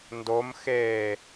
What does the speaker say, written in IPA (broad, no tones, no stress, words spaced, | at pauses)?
ndom xeː